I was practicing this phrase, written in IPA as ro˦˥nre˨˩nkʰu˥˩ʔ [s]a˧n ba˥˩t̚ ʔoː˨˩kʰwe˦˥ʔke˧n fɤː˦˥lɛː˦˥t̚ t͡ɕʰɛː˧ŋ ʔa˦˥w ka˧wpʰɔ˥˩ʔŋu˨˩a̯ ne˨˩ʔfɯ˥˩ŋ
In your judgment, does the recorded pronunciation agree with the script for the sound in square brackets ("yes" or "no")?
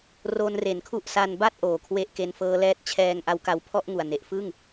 yes